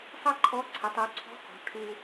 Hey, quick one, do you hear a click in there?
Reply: yes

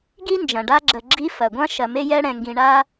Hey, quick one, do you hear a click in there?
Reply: yes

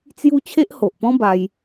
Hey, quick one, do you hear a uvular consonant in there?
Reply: no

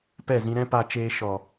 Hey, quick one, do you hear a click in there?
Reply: no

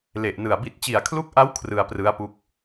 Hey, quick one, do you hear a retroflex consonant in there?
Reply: no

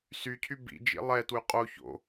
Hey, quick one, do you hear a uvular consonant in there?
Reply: yes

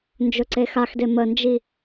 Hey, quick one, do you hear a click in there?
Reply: yes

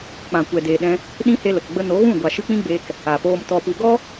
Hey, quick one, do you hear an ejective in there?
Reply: no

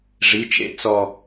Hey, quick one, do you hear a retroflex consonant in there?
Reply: yes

